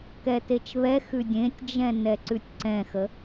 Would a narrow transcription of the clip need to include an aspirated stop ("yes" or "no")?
no